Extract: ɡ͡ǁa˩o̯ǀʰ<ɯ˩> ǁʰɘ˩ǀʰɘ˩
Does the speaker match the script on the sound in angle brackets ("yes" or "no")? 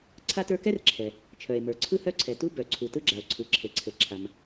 yes